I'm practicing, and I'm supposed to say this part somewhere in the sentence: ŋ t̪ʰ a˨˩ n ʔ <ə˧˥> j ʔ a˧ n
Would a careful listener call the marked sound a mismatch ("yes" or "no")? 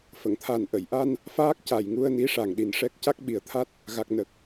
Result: yes